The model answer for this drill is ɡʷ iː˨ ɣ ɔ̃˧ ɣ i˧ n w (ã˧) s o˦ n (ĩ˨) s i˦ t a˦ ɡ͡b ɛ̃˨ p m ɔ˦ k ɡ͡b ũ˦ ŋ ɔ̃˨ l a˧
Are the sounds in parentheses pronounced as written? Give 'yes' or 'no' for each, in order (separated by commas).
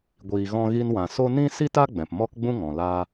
no, no